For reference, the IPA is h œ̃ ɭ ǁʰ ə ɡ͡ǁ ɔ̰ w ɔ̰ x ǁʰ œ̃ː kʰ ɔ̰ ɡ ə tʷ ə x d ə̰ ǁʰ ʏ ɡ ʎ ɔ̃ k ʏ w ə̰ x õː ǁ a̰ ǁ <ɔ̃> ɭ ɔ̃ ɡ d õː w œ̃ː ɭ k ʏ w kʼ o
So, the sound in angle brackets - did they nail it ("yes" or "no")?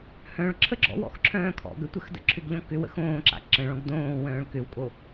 no